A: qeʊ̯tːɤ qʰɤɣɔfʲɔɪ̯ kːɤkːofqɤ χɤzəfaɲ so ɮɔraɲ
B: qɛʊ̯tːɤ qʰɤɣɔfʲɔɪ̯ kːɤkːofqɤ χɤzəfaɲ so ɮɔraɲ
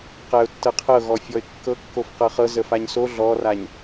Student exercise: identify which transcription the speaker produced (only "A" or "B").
B